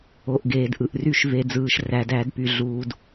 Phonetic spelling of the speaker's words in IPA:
o˩ ʔ ɡ eː˩ d ʔ ɯ˩ ʔ r y˧˩˧ ʃ v e˩ d͡z ɯː˩ ʃ r æ˩ d æ˧˩˧ d p y˩ ɮ uː˩ d

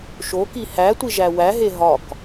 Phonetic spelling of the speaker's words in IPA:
ʃ o k i h æ tʷ i ʒ æ w æ ɦ e ɦ ɒ k

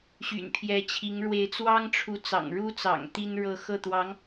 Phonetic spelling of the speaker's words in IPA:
ɕ y̰˨˩ n pʰ j ɛ˧˥ t͡ɕʰ i˧˥ ŋ ɻ w e˧˥ ɪ̯ t͡s w ɑ˥ ŋ ʈ͡ʂʰ u˧˥ t͡s ɑ̰˨˩ ŋ ɻ u˥ t͡s ɑ̰˨˩ ŋ t̪ i˥ n ɻ ɤ˥˧ x ɤ˥˩ t̪ w ɑ˧˥ ŋ

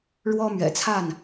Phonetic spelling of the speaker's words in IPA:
ɻ w ɔ˦ m ɥ ɛ̰˨˩ t͡sʰ a˥˨ n

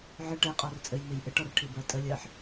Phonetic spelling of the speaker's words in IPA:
ʕ ə ʈ ɛ qʼ ɔ r t͡sʼ ɘ j n̪ e j ʔ ɘ ʈ ɔ r ʈʰ i b ɜ tʼ ə lʲ ɜ ħ

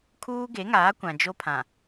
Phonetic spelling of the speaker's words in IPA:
kʰ uː˦ ɡ e˨˦ ŋ aː˨˦ kʷ ã˨ d͡ʒ o˦ pʰ ã˨

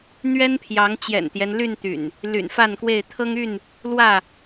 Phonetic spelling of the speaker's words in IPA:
n̪ ɥ ɛ˦ n pʰ j ɑ˨˦ ŋ t͡ɕ j ɛ̰˨˩ n t̪ j ɛ˦ n l y˥˨ n t̪ y̰˨˩ n | l y̰˨˩ n f a˥˨ n k w e˥˨ ɪ̯ t̪ʰ ɤ˦ ŋ y˥˨ n | l w ä˥˨

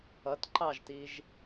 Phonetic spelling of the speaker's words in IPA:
ʌ t ǃ ɑ ʒ t i ʒ

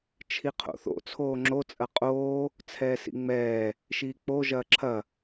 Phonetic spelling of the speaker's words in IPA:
t͡ʃʰ i qʰ o̰ θ o̰ t͡sʰ oː ŋ͡ǁ o t͡sʼ ɐ qʼ oː | t͡sʰ ɛː s ḭ ŋ͡m ɛː | ʃ iː k͡p o ʒ ɐː ǁʰ ɐ

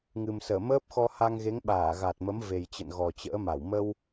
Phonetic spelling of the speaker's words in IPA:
ŋ ɨ˨˩ m s əː˧˩ m əː˦˥ p̚ x ɔ˧ h a˧ ŋ ɣ e˨˦ ŋ ɓ aː˧˩ ɣ a˨˩ t̚ m ə˨˦ m v e˨˩ j t͡ɕ ə̰˧˨ n ɣ ɔ˨˩ t͡ɕ ə̰ː˧˥ m a˧˩ w m ə˧ w

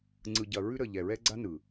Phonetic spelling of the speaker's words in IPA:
ŋ͡ǀ ɯ˨ ɟ ɐ˨ ɹ ʉ˧ ɾ ə˨ ʎ ɛ˨ ɹ ɛ˧ ɡ͡ǀ a˦ n ɯ˨

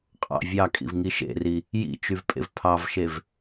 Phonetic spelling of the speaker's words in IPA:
qʼ ɑ̰ vʲ ɑ kʼ ḭ v ŋ i ʃ ḛ r i | j ḭ t͡ʃ y v pʼ ḛ v pʰ ɑ v ʃ e v

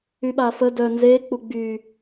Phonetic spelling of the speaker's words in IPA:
y ɓ a f ə d œ n z e k͡p u ɡ͡b y

